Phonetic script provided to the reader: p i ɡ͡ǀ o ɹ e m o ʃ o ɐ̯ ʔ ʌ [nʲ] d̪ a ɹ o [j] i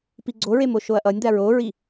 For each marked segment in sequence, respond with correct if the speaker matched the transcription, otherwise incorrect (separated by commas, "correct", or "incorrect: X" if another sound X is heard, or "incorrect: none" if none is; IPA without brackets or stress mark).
correct, incorrect: ɹ